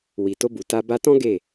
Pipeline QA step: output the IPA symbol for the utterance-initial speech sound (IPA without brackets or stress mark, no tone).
w